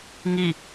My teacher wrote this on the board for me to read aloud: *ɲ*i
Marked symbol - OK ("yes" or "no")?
no